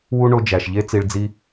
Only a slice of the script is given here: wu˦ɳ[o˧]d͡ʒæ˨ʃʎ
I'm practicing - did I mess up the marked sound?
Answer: no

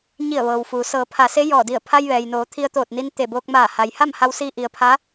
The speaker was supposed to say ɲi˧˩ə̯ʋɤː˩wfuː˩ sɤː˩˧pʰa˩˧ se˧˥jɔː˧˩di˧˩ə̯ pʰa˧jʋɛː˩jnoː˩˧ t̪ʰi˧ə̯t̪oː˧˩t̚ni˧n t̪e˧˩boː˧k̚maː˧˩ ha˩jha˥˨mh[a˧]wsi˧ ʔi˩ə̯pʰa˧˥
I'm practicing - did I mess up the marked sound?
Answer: no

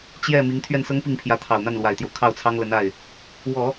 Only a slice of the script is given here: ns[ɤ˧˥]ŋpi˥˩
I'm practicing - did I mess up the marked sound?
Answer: yes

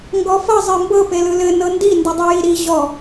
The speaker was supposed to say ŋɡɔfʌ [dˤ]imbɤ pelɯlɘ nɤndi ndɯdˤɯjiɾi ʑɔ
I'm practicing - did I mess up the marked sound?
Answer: yes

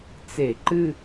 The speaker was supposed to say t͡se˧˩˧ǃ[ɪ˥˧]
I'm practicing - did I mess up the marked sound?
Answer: yes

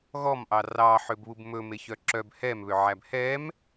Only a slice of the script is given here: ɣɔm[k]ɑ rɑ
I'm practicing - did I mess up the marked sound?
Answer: yes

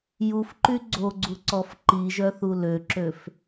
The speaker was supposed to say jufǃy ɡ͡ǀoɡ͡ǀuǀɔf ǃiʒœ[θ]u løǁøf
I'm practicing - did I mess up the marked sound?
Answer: no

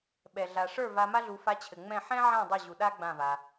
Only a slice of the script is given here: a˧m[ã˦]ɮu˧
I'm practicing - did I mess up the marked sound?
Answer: yes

